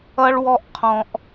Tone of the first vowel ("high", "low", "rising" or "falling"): high